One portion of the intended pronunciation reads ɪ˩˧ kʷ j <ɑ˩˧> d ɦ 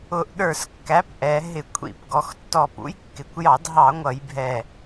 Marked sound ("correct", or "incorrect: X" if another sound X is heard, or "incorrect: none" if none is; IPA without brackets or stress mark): incorrect: ɑ˧˩˧